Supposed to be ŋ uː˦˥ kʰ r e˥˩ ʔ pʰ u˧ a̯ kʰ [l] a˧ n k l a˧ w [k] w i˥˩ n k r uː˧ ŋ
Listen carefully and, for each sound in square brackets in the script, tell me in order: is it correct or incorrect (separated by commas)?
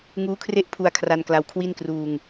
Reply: incorrect, incorrect